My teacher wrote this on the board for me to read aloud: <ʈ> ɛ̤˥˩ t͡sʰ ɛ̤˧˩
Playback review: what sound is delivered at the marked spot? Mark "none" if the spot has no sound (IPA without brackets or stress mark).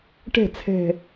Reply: ʈ